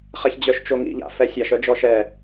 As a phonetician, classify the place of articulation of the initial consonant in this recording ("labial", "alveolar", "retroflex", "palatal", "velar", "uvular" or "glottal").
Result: uvular